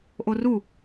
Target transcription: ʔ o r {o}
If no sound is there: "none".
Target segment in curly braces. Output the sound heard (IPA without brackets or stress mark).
u